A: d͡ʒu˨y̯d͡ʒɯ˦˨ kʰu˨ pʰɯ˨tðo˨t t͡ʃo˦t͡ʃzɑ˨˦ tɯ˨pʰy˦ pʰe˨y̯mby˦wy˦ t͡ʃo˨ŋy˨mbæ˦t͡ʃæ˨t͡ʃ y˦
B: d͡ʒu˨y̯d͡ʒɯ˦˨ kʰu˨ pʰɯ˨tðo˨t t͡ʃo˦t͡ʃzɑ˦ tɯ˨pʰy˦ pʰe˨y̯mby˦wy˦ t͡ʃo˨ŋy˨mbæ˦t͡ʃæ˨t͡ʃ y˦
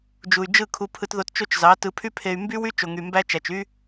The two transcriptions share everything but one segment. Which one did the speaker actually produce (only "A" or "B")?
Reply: A